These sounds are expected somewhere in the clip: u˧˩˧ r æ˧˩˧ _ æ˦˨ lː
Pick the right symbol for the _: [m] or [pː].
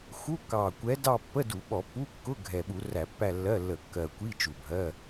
pː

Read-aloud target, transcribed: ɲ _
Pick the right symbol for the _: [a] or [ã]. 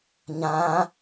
ã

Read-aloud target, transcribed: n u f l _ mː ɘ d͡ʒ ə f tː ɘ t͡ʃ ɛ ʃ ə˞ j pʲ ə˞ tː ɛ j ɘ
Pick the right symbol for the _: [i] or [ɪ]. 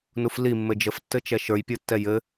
i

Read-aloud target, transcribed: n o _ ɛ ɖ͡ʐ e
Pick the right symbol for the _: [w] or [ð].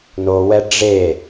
w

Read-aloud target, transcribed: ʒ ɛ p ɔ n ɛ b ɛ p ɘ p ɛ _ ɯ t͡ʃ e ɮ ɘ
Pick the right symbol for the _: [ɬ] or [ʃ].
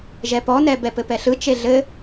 ɬ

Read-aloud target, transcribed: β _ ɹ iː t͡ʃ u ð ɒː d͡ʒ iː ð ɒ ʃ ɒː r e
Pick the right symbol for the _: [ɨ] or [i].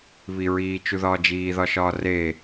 i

